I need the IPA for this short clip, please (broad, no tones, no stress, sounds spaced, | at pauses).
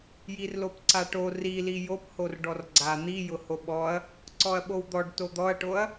j i r l o p ǀ a ʈ o r i l i j o p h o r ɖ ɔ r ɡ͡ǀ a n̪ i j ʊ h o ɓ ɔ ɐ̯ | ǀ ɔ ɐ̯ ɓ o w d̪ ɔ ɖ t o d̪ ɔ ɐ̯ ʈ o ɐ̯